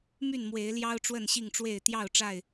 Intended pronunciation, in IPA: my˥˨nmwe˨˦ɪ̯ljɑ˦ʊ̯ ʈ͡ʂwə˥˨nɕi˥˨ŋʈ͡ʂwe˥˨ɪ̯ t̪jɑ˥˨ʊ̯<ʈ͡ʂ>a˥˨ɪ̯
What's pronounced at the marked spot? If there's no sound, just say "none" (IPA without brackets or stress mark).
ʈ͡ʂ